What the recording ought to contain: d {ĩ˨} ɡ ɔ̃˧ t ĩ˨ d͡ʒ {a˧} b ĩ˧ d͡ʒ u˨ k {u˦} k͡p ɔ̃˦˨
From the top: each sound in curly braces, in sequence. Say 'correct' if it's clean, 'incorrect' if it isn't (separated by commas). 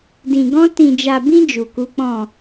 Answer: correct, incorrect, incorrect